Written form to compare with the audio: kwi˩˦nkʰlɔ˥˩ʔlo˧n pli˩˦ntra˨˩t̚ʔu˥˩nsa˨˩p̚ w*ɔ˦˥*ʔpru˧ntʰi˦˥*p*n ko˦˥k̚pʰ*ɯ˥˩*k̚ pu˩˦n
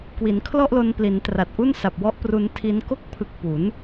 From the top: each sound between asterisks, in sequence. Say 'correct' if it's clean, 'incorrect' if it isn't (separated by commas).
correct, incorrect, incorrect